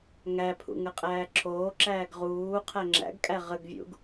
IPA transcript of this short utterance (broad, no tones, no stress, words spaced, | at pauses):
ŋæpʰṵ ŋəqʼæːǁʰoːǁæːɡ ʁuː qʰæŋ͡ǁæ̰ɡkʼæ ʁəɡvʲṵɡ